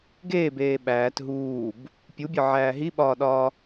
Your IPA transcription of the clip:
ɡ eː b eː ɓ æː t ɦ uː b | pʲ u bʲ ɒ ʕ æː ɦ i ɓ ɒː ɗ ɒː

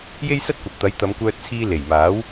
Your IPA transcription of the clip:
j e˥ j s ɐ˥ t̚ kʷ ɐ˨ p̚ t̪ ɐ˨˥ j t̪ ɐ˨˧ m kʷ œː˧ t̚ t͡sʰ iː˧ l e˨˩ j m aː˨˥ w

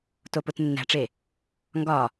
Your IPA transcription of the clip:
t o p o t nː æ̤ ʈ͡ʂ e | ŋ ɡ ɒ

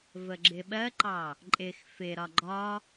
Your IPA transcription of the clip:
v ə ɡ͡ǁ ɪ ɓ ɜ ǃ ɑ | ǃʼ ɪ x f ɪ ɾ ɒ ɡ͡ǃ ɒ

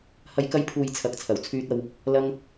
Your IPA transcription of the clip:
h ɐ˨˧ j k ɐ˧ j pʰ uː˨ j t͡sʰ ɐ˨˥ k̚ t͡sʰ ɐ˨˩ w t͡sʰ yː˧ t̚ ɐ˧ w | l ɐ˧ ŋ

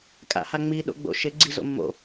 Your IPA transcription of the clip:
kʼ a̰ h a ŋ͡m i ɗ o̰ ɡ͡b o̰ ʃ ɪ ɡ͡ǀ i z o̰ mː o̰

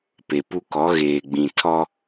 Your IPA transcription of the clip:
p e˨ p u˦ k ɔ˨˦ ɣ eː˨ ɡ͡b ĩ˨ tʰ ɔ˦

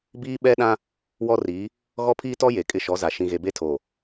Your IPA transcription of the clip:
b iː˦ ɓ ɛ˦ ɗ ã˦ | w ɔ˦ r iː˨˦ | ɣ ɔ˦ pʰ iː˦ t ɔ˦ j e˨ kʼ ɪ˦ ʃ ɔ˨˦ z a˨ ʃ ĩ˨ ɣ e˨ b e˦ tʰ oː˨

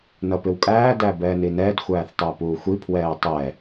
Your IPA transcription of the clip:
n ʌ p ɪ w kʼ æː d æ b ɛː n i n ɛː d xʷ æː θ tˤ æ p uː xʷ i pʰ w ɛː tˤ ɛː

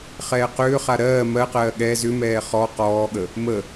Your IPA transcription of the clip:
χ ɛː q ʏː χ a ɾ ɜː m ɜ q ɜː ɠ ɛ z ʏ m ɛː χ ɔ q ɔː ɠ ə | m ə

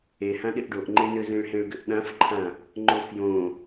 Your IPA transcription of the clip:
e h ã ɗ ɪ ʔ ɖ o ʔ ŋ͡ǃ e n ʏ z ẽ ɭ h ẽ ɭ ɡ ʏ ʔ ɗ ã f ǃʰ ã | ŋ͡ǃ o f j õ

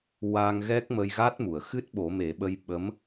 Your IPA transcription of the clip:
w a˧ ŋ ɣ ɛ˦˥ k̚ m ə˧ j ɣ a˦˥ t̚ m u˨˩˨ ə̯ x ɨ˦˥ t̚ ɓ o˨˩˦ m e˨˩˦ ɓ ə˧ j ɓ ə˧˥ m

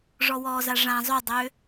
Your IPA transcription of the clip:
ʐ ɔ w ɔː z a ʐ ã zˤ ø dˤ ø

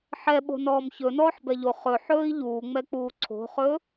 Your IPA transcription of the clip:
ħ ɛ ɓ o̤ n ɔː m ç ɵ n ɔː ħ b ɛ ʎ o χ ɵ ħ ɵː i̯ ʎ uː ŋ͡m ɛ k͡p uː ǀʰ o̤ χ ɵː

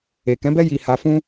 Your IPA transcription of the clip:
e˨ k ɛ̃˨˦ b ɛ˦ j i˧ h a˧ f ũ˦

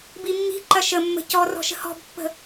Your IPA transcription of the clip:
b i mː i̤ ǃ ɐ ʃ ə mː ə̤ c ɔ r ɔ̤ ʃ ə̤ h ɔ̤ b pː ə̤

